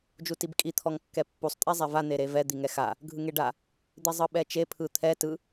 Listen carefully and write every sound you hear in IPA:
d͡ʒ u t i b kʼ i t̪ʰ ɔ ŋ kː ɛ pː u sˤ tʼ e zˤ ɛ v a n̪ e ɾ e v ɛ d̪ i ŋ ɛ x a | ɡʱ ɯ ŋ e ɖ a | d̪ i zˤ ɯ ɓ ɛ t͡ʃ e pʰ ɯ t̪ʰ ɛ t ɯ

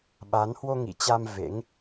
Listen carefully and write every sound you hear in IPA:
ɓ a˨˦ n h w o˧ ŋ ḭ˧˨ t͡ɕ a˧ m v ḛ˧˥ ŋ

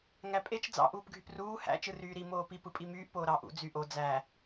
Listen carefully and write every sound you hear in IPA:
ŋ æ pʼ e t͡ʃ d͡z ɑ̰ ʔ uː p ɡʱ y p r uː h æ̰ t͡ʃ ɯ r yː ɾ i m oː p i p ɯ pʼ i m yː ʔ p oː ɾ ɑ ʔ ṵ d͡z y ʔ o d͡z æ

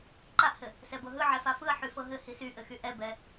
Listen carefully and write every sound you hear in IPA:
ǃ a ʔ h ɘ | s ɛ b ɤ ɦ ɯ ʕ ɛ f a f ɯ ɐ̯ ħ y f ɤ ɦ ɘ h i s y ʔ ɘ x y ʔ ɛ b ɛ

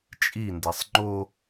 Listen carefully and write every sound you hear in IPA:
t͡ʃʼ i n d ɛ sˤ ŋ͡ǃ o

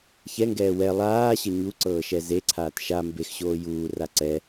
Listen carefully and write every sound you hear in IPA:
ç ɛ ŋ ɡ ɛː w ɛ lˠ aː ɕ ʌ ɲ u ǀ ɤː ʃ ɛ z e ǀʰ aː t ʃ a m b e x ɕ oː j uː r a ǀ ɛ

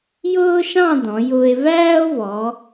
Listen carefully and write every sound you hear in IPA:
j ʊː˥ ʃ ɑ̃˥˧ d ɔ̃˩˧ j ʊː˧ e̯ v æː˥ o̯ v ɔ˩˧

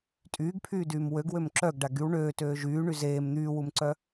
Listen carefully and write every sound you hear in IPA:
tʼ yː ɡ pʰ yː d yː m w ø ɡ w ø m ǁ œ ɡ ɖ a ɡ y w ɳ øː t øː ʒ yː ɳ y z eː m n̪ yː w u m ǀ œ

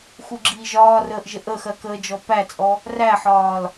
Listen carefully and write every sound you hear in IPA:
x u ɡ͡ǁ iː ʒ ɒː r əː ʔ ʒ ə ʔ ə x ɜ k əː d͡ʒ ɔ p æ t͡sʼ ɔ | r æ ħ ɒː l

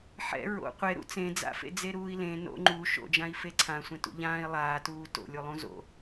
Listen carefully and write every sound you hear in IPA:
ħ ɛ̰ ɹ o̰ qʷ e ɾ ṵ t͡s ẽ d͡z a̰ f ḛ d͡z e ɾ uː i̯ l ẽ n o̰ ŋ͡ǃ u ʃ o̰ d͡ʒ ã i̯ f e ǀʰ ã sʷ ɛ̃ t ṵ ʎ ãː i̯ lˠ aː t uː t o̰ lʲ u lˠ ũ z o̰

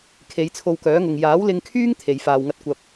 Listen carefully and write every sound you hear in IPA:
kʰ e˨˧ j t͡sʰ o˧ w k œː˨˥ ŋ ʊ˨ ŋ j aː˨˥ w l ɪ˧ ŋ kʰ yː˥ ŋ t̪ʰ e˨˧ j f aː˧ w ŋ ɐ˥ t̚ kʷ ɐ˧ p̚

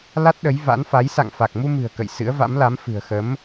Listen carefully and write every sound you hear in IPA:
l a˦˥ t̚ ɗ ə˨˦ j v a̰˧˥ n f a˨˦ j s a̰˧˨ ŋ f a˨˩ k̚ m u˧ m ɨ̤˨˩ ə̯ k ə̰˧˨ j s ɨ̰˧˥ ə̯ v a̰˧˥ m l a˨˦ m f ɨ̤˨˩ ə̯ x ə˨˦ m

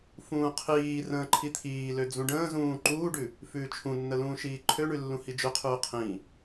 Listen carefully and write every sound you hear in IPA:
f ũː qʰ iː r ə̃ː ǃʰ i t̪ʰ iː l ø d͡z ũ ɖ ə̃ː z ũː ǃ uː ɖ ʉ | f ʉː t͡ʃʰ ũ nː ə l ũː ʃ iː ǃʰ ø ɳ ʉ lː ũ h i d͡ʒ ø qʰ ʉː qʰ ĩ

